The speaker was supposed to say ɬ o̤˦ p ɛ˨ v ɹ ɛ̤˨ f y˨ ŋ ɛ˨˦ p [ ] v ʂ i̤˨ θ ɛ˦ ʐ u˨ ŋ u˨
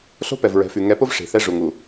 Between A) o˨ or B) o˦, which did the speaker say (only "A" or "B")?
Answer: B